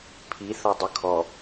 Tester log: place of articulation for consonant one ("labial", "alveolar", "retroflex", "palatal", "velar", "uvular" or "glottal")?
labial